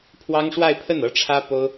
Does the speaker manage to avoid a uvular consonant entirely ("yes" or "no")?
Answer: yes